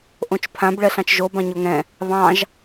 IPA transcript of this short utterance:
ʔ õ t͡ʃ pʰ ã b ɭ ɛ ɬ ɑ̃ t͡ʃ ʒ o b ɑ̃ ɲ o ŋ ɛ̃ | β ɑ̃ ʒ

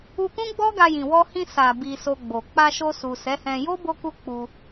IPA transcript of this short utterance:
u˧ k ũ˦ ɡ͡b ɔ˦ ɡ a˧ j ĩ˨ w ɔ˧ h ĩ˧ s a˨ b i˧ s o˧ ɡ͡b o˨ k͡p a˧ ʃ o˧ s u˨ s ɛ˨˦ h ɛ̃˧ j o˦ b o˦ k u˦ k͡p u˧

